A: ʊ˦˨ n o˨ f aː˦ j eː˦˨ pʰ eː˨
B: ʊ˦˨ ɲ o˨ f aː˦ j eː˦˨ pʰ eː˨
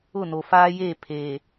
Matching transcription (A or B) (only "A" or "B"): A